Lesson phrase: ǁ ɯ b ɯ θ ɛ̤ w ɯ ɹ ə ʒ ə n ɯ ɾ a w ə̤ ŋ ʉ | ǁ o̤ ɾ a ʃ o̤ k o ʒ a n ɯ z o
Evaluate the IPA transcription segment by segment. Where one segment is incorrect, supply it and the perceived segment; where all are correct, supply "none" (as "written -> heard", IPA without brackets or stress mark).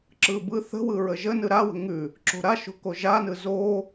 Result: ɛ̤ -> ə̤